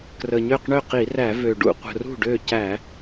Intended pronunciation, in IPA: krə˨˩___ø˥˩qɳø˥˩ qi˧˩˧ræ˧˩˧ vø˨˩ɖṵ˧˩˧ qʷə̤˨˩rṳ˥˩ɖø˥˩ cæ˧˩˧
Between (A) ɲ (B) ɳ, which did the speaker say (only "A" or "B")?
A